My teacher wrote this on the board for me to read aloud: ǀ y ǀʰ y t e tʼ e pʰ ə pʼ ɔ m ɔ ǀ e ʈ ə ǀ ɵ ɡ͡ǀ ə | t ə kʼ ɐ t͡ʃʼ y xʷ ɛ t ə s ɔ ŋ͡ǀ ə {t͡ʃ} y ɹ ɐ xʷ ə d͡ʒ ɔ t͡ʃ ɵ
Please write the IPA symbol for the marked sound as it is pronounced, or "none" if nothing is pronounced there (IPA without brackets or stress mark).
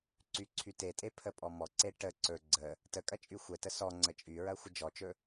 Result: t͡ʃʼ